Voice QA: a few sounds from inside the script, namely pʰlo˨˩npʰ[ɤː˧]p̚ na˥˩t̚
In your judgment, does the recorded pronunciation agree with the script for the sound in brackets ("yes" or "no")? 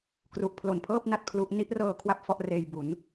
no